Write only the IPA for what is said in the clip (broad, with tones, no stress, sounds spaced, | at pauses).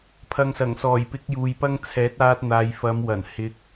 pʰ ɐ˨ ŋ s ɐ˨˩ ŋ s ɔː˨˩ j p ɪ˨˥ k̚ j uː˨ j p ɐ˥ ŋ t͡sʰ ɛː˨˥ t̚ aː˧ t̚ n̪ aː˨ j f ɐ˨˧ m w ɐ˨˩ n h ɪ˧ k̚